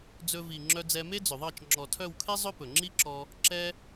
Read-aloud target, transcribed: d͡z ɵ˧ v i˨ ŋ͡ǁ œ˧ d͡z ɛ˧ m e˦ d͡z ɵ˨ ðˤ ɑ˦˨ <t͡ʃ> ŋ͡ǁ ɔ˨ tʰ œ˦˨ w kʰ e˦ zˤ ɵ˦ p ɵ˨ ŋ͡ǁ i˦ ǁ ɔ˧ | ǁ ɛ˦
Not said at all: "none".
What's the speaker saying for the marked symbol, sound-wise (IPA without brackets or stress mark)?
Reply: t͡ʃ